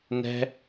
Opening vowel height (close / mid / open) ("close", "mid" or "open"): mid